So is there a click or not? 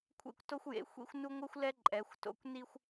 yes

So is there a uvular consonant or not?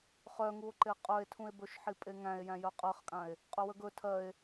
yes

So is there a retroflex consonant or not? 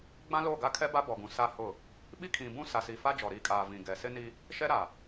no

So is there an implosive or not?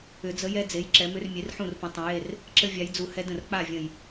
no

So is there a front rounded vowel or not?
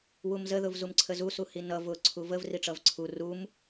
no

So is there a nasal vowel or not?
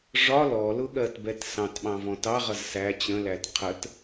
yes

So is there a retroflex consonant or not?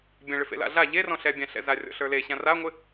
yes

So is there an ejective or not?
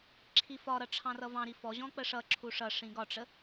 no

